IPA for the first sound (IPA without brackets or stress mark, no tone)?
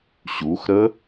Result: ɕ